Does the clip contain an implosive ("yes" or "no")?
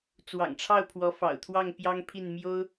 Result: no